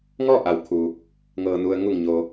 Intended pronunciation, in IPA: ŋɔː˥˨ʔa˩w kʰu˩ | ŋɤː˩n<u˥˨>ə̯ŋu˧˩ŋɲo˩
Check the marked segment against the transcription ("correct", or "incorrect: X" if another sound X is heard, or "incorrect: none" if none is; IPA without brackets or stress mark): incorrect: u˩